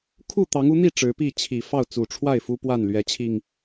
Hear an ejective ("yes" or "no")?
no